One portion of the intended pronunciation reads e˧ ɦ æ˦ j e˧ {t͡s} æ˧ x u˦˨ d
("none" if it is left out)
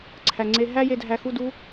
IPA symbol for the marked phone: dʱ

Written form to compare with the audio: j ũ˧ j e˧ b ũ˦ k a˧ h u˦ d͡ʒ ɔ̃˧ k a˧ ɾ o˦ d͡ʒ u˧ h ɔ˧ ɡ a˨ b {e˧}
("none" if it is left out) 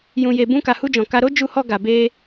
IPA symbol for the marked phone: e˧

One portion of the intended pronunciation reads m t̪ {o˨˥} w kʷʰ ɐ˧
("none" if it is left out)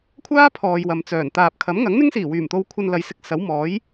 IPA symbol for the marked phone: o˧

